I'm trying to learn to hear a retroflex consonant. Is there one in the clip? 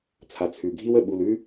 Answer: no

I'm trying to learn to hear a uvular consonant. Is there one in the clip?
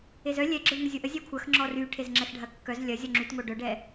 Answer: no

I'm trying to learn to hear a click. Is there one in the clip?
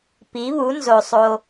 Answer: no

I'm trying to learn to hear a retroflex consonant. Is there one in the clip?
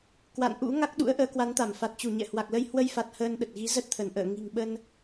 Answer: no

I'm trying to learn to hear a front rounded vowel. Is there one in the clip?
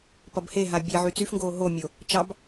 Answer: yes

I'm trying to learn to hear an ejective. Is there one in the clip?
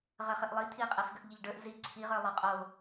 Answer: yes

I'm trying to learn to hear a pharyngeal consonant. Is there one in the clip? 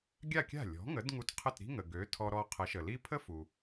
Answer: no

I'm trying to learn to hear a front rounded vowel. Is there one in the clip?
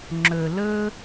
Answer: no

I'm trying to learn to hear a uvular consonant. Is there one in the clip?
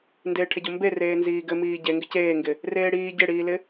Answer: no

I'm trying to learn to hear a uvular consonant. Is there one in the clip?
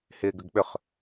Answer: yes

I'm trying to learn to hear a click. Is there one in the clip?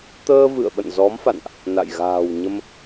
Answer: no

